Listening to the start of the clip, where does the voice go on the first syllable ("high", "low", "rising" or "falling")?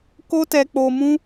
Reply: high